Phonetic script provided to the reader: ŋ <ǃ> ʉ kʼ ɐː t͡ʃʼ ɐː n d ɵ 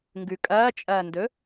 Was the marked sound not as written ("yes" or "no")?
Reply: yes